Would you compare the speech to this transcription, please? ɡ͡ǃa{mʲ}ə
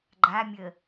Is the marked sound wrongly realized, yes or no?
no